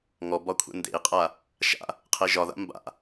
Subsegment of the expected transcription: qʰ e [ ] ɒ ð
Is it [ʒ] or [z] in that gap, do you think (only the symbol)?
ʒ